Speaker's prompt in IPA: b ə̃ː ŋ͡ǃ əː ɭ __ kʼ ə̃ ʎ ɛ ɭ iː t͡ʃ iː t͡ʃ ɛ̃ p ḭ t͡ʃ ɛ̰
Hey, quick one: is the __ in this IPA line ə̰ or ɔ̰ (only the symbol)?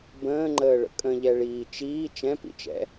ə̰